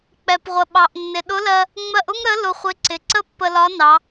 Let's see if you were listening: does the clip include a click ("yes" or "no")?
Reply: yes